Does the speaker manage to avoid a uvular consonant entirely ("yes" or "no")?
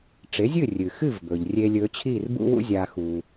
yes